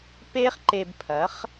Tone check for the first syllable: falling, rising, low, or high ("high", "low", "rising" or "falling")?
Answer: high